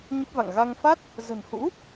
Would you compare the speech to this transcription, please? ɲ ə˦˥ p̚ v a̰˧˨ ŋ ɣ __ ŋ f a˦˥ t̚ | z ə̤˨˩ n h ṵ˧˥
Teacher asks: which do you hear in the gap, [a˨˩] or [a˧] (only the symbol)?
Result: a˧